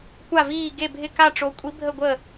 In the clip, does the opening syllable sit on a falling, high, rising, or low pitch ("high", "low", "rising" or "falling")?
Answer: falling